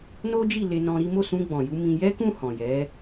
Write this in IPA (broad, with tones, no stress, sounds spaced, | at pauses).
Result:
n o˦ d͡ʒ i˦˨ l e˧ n ɔ̃˧ ɾ i˦ m o˦˨ s ũ˧ ɡ͡b ɔ̃˨ j u˧ m ĩ˧ j ɛ˦ k ũ˦˨ h ɔ̃˨ j ɛ˨˦